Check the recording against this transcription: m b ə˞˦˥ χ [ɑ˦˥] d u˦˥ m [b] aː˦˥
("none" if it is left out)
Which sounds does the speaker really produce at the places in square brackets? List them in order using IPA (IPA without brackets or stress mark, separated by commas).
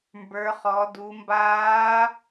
ɔ˦˥, b